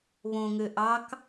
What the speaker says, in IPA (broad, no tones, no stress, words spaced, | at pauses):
βõŋø ʔɑk